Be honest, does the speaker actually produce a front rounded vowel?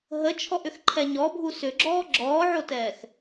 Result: yes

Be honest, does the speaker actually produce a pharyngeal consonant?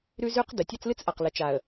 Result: no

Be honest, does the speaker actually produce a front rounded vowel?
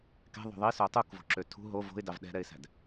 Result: yes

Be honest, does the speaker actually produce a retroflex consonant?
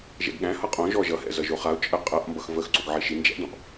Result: no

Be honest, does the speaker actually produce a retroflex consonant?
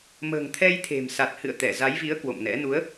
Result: no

